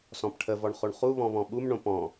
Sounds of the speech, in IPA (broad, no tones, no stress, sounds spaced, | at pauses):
s ɔ̃ p ʈʰ ə v ɔ ɳ χ o ɳ χ u β ɔ̃ β ɔ̃ ɓ u m ɳ õ p ɔ̃